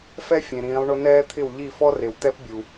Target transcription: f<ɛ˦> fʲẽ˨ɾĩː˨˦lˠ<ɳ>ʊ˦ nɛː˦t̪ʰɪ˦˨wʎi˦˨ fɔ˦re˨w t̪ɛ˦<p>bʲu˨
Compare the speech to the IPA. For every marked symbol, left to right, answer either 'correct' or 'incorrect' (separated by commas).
correct, correct, correct